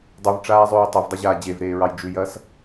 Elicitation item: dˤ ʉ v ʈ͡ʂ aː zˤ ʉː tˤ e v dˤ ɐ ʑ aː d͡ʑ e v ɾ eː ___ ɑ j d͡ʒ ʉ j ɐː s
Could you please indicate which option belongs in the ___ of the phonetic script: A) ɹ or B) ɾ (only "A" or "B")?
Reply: A